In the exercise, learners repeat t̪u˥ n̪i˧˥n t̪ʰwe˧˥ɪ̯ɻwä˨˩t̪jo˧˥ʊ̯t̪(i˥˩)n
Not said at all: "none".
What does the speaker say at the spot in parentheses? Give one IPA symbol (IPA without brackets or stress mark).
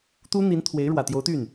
y˥˩